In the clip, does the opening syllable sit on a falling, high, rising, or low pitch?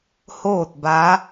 falling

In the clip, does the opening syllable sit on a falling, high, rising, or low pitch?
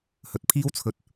low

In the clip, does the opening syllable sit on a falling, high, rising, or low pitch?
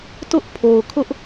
high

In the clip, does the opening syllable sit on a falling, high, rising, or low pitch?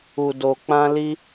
low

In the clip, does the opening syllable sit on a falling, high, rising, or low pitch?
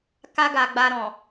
high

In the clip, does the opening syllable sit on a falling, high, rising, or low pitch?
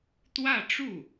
falling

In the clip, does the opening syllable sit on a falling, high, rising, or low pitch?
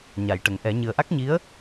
low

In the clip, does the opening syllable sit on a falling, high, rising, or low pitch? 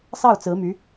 falling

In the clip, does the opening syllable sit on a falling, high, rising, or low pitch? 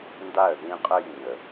falling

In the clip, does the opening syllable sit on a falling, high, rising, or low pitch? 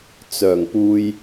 low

